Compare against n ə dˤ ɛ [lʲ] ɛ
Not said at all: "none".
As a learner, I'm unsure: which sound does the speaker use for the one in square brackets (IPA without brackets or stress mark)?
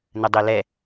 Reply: l